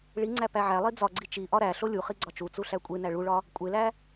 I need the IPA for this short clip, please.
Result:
ɭ i ŋ͡ǀ æ p æ ʕ æ lˠ i d͡z ɒ ɡ͡ǀ i t͡ʃ i ʔ ɒ ɾ æ ɬ o lʲ u χ i ɡ͡ǀ ɒ t͡ʃ u t͡s u ɬ æ kʷʼ e n æ ɭ u ɭ ɒ | kʷʼ e l æ

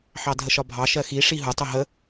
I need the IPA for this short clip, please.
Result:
ħ ɑ dʱ ə ʃ ɒ bʱ ɑ ʃ ɜ x i ʂ i ɦ ʊ tˤ ʊ ɦ ə

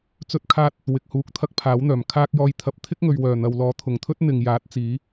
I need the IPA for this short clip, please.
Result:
t͡s ɵ˧ t̚ kʰ aː˧ t̚ | w ɪ˨ k̚ h uː˨ k̚ t̪ʰ ɐ˥ k̚ pʰ aː˨˥ w n̪ œː˨˩ m kʰ aː˧ k̚ j ɔː˨ j t̪ʰ ɐ˨ p̚ t̪ʰ ɪ˥ k̚ ŋ ɵ˨ ɥ w œː˨˩ n̪ ɐ˨ w l ɔː˨˧ t̪ʰ ʊ˨˩ ŋ t̪ʰ ɵ˥ t̚ n̪ ɪ˨ ŋ j aː˨˥ t̚ t͡s iː˨˥

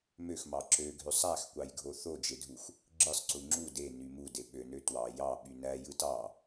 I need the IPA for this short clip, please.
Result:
m ø x m ɑ ǁ ø ɡʱ ø sˤ æ x kʷ ɑ j ɡʱ o θ o d͡ʒ e dʱ u x | ɡ͡ǁ ɯ sˤ ǀ u ŋ͡ǁ u d e n y m u d e ɓ ø n ø t w ɑ j ɑ ɓ y n æ j ɯ t ɑ

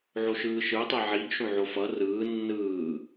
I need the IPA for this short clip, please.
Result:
ʕ o ʃ ɯː ʃ ɯ e̯ tˤ e ʕ i ɡ ʃ õ ʕ o f ʌ r ɯː nː ɯː

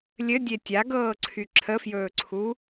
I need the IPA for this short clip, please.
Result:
lʲ ɘ dʲ e tʲ a ɡ ɤː ǀʰ y ǁʰ ə f j ɵː ǀʰ u

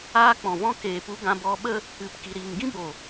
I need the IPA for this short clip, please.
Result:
aː˧ k͡p ɔ̃˨ v ɔ̃˧ k eː˨ p u˧ ɡ ã˧ b ɔ˧ ɓ ə˦ | ɨ˨˦ p k i˧ ɾ iː˧ ŋ ɡ ĩ˦ b o˨

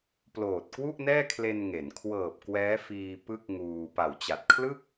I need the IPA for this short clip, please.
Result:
p l oː˨˩ t̚ k w u˥˩ ʔ n ɛː˥˩ kʰ l e˧ n ŋ e˩˦ n kʰ w ɤː˨˩ p̚ k w ɛː˦˥ f iː˧ p ɯ˥˩ k̚ ŋ uː˧ p a˨˩ w t͡ɕ a˨˩ t̚ kʰ l ɯ˥˩ k̚

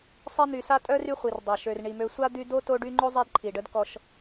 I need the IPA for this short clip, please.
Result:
sˤ i˦ n̪ y˨ s a˥ tʼ œ˥ r y˦ χʷ i˩ r dˤ a˩ ʃ ø˩ r ɳ i˩ m ø˨ sʷ a˥ d̪ y˦ d o˥ t o˦ ɖ y˦ ŋ͡ǃ o˥ zˤ ɛ˦ d ǃʰ i˩ ɖ ə˦ d k ɔ˦ ʃ

